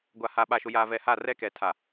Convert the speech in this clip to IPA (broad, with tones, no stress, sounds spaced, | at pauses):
ɡʷ a˨ h a˨ ɓ a˨ ʃ ʊ˨ j aː˨ v ɛ˨ h a˦˨ r ɛ˦ k ɛ˨ tʰ a˨